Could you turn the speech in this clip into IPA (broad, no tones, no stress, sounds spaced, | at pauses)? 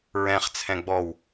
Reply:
ɹ ɛ̃ χ t͡sʰ ɛ̃ ɡ͡b ɔ w